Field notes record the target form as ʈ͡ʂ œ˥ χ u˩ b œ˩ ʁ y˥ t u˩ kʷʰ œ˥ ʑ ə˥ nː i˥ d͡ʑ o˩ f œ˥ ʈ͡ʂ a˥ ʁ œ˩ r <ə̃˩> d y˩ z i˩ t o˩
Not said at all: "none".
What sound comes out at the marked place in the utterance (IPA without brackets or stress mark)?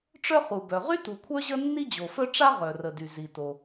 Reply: ə˩